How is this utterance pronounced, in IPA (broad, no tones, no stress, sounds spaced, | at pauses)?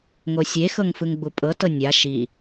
ŋ o sʲ e x ɤ ŋ f ɯ ŋ ɡ͡b u pʼ ɤ t ɤ nʲ a ʃ i